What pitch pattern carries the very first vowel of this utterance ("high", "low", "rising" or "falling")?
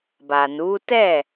low